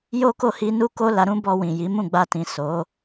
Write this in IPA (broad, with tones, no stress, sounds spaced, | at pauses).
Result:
j o˦ k o˦˨ h i˧ n u˦ k o˦ l a˧ ɾ ũ˦ b ɔ˧ w ĩ˨ j i˨˦ m ũ˦˨ ɡ͡b a˧ t ĩ˨ s o˨˦